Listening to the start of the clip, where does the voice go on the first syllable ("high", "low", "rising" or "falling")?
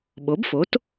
rising